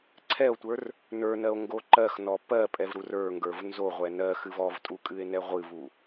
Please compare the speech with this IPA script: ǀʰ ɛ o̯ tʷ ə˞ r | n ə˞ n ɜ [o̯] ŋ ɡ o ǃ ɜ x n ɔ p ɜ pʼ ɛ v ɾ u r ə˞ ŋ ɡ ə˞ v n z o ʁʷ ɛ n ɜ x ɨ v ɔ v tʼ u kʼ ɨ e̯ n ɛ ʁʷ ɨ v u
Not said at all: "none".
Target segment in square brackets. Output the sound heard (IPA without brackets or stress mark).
o̯